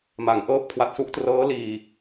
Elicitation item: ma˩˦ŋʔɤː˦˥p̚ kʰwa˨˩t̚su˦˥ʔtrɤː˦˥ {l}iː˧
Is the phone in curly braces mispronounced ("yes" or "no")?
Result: no